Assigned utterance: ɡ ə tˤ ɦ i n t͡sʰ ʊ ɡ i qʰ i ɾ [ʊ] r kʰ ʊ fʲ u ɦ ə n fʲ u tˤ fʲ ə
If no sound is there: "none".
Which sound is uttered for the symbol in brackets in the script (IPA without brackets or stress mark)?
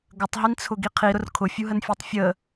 ʊ